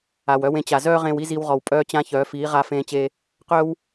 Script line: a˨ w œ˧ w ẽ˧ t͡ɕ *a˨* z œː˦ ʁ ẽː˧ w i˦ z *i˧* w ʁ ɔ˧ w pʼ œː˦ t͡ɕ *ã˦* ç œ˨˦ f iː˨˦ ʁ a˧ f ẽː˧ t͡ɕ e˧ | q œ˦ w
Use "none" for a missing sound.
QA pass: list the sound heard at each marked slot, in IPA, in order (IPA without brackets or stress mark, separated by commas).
a˨, i˦, ã˦